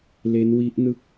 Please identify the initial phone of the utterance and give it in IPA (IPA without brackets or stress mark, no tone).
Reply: l